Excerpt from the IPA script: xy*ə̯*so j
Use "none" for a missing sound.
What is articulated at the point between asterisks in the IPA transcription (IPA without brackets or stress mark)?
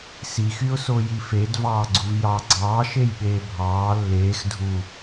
ʊ̯